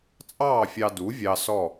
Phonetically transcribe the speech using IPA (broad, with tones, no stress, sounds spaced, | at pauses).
t͡sʼ ɑː˥˨ fʲ ɑ˧ d u˩˥ vʲ ɑ˧ s ɔ˥˨